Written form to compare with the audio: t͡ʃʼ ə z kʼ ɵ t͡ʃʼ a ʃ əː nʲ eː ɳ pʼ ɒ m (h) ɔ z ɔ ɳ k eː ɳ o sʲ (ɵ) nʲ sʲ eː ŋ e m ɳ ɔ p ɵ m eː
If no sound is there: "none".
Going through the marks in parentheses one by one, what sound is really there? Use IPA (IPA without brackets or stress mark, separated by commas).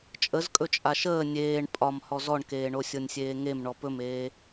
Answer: h, ɤ